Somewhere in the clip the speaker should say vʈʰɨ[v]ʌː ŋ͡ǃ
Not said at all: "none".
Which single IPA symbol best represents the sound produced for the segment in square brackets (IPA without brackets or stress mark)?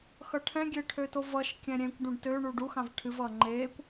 v